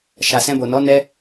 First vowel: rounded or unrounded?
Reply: unrounded